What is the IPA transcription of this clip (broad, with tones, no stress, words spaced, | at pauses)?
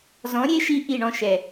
zɔ̃˨˦ɾʲe˦ʃi˧ ʔi˦˨ɳɔ̃˧ʃɛ˨